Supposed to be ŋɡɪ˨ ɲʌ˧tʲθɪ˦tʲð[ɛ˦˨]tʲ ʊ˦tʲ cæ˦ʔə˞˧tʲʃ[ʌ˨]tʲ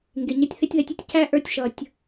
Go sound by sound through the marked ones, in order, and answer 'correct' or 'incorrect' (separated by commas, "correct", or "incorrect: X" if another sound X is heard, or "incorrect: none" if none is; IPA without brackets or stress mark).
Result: incorrect: ɛ˧, correct